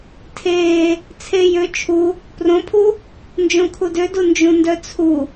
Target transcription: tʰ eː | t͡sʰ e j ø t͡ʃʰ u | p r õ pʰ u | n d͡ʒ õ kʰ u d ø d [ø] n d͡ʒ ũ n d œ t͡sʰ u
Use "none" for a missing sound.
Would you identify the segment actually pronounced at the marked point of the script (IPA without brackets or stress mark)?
u